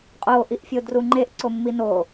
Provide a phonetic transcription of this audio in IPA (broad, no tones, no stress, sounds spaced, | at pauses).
qʼ o ʔ i ʔ fʲ o d r u ŋ͡ǃ e ʔ ǀ o mː i n o